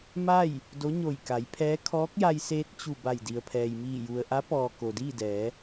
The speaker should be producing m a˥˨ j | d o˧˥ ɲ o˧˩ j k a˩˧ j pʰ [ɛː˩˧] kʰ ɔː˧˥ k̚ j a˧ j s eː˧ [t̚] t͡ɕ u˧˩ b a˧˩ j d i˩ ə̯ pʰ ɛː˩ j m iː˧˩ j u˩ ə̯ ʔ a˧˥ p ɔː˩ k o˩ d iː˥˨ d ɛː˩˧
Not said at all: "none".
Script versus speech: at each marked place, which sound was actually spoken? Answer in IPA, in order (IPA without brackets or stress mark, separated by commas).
ɛː˧˥, t̚